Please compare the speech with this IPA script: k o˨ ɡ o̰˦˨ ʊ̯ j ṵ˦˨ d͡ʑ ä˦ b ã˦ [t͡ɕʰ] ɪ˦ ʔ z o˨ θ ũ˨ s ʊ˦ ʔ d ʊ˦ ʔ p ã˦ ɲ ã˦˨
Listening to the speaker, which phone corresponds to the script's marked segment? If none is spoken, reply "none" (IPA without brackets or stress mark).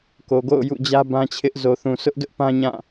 t͡ɕʰ